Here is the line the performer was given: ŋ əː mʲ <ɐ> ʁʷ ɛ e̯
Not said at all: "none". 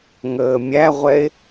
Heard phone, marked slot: æ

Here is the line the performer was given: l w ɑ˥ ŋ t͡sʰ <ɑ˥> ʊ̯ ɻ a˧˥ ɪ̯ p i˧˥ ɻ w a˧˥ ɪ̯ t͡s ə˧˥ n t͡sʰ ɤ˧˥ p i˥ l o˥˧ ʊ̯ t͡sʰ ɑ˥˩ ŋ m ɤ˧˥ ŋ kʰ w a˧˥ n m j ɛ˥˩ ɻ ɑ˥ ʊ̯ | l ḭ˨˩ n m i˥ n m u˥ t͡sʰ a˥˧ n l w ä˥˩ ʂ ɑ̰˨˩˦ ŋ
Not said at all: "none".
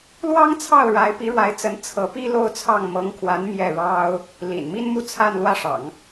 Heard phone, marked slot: ɑ˥˩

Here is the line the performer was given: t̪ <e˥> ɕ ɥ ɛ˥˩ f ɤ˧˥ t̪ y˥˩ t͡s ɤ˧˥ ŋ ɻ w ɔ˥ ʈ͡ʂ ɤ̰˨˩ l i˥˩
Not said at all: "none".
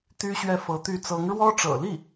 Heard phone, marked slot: y˥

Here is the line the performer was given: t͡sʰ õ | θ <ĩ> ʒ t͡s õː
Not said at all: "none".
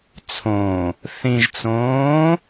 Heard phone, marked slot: ĩ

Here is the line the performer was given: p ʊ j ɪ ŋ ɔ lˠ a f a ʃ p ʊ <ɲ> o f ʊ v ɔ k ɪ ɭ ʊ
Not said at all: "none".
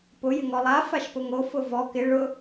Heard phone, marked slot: ŋ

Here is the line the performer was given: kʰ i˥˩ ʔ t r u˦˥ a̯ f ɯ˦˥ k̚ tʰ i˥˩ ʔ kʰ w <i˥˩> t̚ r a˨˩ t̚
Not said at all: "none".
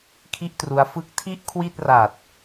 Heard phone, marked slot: i˥˩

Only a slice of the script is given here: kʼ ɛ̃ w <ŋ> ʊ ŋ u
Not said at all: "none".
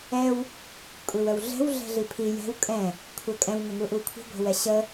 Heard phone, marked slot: ŋ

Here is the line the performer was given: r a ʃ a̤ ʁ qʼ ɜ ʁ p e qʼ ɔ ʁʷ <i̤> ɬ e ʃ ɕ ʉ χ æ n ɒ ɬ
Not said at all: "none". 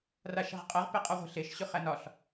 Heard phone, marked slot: e̤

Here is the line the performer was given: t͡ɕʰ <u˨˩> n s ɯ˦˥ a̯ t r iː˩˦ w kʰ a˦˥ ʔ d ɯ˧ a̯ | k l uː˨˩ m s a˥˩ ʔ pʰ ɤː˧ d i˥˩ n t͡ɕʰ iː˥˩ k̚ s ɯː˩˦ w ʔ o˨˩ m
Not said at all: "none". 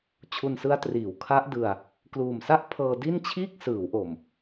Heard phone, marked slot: u˧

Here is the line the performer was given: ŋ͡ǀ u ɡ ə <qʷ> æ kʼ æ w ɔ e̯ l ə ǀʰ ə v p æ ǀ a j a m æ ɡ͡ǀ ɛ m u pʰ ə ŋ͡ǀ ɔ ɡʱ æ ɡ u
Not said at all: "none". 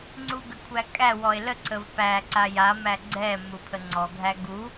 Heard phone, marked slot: kʷʰ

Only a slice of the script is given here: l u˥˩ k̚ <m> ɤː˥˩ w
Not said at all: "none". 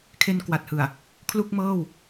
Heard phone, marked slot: m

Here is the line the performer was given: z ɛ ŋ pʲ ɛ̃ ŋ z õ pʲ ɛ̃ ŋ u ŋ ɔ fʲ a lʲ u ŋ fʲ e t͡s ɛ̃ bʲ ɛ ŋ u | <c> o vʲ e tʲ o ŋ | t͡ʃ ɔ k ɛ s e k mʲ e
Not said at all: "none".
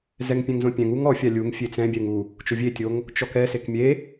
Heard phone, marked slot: t͡ʃ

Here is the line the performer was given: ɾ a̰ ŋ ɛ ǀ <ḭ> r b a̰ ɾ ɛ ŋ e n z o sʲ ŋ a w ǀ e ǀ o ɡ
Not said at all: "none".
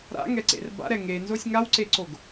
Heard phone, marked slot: ḛ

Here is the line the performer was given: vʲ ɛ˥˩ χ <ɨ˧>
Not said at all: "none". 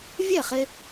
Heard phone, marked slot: e˧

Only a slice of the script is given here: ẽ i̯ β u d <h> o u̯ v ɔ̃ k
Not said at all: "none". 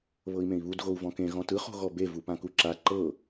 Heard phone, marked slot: ɣ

